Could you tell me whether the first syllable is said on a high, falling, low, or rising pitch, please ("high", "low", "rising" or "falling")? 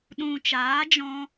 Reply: low